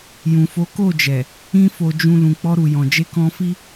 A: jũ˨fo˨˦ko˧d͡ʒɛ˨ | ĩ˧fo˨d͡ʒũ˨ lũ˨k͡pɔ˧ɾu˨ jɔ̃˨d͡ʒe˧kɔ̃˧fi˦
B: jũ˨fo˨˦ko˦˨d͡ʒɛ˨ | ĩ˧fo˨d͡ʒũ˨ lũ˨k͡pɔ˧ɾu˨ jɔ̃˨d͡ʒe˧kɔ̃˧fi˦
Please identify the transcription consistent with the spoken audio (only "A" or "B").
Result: B